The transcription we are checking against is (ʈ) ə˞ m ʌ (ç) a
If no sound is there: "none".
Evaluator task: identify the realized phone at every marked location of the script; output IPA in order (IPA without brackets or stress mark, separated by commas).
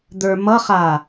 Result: d̪, χ